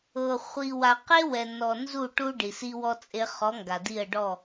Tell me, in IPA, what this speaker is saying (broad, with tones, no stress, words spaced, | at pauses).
ɤ˨ χʷi˨wa˨qe˦wɛ˨ nɔ˨ nzu˦˨ʈu˦ɖi˨ si˦wɔ˦t͡sʼe˦ χɔ˨˦ŋɡa˨ di˦˨ə̯ɖɔ˦˨